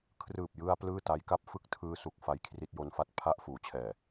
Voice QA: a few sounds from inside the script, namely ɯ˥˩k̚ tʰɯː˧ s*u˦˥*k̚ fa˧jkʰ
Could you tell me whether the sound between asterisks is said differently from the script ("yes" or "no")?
yes